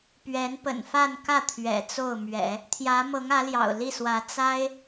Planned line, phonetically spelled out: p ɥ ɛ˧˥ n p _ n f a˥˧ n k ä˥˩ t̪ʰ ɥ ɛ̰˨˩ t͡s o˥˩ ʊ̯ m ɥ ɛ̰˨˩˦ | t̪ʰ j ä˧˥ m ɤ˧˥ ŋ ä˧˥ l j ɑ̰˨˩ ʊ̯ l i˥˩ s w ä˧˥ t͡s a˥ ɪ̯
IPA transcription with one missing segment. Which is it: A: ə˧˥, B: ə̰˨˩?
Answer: B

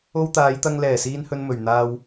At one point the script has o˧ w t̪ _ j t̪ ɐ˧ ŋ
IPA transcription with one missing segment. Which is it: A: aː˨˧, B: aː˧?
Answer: A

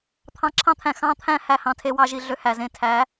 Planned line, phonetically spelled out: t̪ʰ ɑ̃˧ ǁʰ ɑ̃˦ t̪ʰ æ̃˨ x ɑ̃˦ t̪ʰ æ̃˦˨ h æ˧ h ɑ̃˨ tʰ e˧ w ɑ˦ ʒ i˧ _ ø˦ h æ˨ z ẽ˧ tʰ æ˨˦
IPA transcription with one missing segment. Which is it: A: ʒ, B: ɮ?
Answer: B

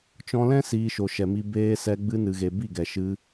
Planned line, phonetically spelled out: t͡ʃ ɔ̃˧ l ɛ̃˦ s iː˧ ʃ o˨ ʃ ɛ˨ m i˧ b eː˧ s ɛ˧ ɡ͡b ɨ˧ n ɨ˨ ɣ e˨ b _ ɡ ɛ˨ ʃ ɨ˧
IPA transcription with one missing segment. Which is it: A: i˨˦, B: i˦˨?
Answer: B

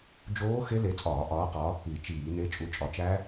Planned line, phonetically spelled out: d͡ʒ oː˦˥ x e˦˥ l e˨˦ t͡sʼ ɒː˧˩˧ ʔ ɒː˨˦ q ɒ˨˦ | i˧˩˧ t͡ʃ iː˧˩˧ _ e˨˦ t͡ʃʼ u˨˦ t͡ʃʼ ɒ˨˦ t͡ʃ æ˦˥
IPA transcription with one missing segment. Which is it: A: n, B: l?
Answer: A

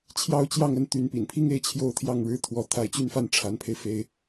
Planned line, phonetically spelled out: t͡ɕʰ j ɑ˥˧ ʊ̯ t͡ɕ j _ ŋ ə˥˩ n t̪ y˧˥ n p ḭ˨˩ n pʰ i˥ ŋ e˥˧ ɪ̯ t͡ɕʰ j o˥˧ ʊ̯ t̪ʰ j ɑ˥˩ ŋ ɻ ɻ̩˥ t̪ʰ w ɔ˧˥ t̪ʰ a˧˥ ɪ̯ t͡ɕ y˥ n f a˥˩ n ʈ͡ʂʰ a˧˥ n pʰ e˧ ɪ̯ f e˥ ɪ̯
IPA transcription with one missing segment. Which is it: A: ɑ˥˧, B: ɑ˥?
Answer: A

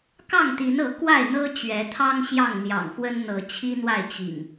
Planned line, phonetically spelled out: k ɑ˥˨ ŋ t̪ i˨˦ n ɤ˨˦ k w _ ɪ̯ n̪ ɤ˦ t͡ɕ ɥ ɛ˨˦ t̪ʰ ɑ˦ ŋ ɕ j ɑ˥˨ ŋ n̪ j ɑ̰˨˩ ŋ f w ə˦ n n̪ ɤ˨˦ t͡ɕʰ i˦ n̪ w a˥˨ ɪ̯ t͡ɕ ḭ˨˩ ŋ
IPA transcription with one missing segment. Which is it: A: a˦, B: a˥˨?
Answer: B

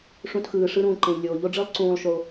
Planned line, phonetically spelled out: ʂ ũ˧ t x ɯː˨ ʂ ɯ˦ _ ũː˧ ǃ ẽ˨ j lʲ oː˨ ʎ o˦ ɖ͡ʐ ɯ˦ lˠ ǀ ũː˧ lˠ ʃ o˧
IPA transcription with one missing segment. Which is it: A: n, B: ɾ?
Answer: B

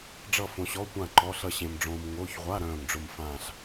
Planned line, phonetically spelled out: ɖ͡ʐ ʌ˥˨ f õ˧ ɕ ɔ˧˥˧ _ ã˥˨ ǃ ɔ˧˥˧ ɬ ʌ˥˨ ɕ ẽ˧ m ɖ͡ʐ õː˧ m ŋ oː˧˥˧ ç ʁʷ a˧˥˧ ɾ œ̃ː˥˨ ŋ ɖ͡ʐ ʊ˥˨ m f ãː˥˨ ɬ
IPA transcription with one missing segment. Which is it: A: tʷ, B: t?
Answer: A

